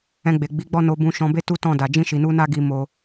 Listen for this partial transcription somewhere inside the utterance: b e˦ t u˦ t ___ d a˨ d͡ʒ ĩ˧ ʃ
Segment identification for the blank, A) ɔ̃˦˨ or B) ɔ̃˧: A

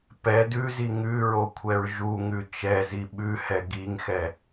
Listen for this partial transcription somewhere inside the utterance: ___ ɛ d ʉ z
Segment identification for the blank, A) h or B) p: B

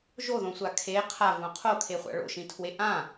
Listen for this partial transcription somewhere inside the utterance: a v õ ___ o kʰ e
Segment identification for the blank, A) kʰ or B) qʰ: B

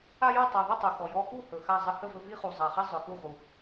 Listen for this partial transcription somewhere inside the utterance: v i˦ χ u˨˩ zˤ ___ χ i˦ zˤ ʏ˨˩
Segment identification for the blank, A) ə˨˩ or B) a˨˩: B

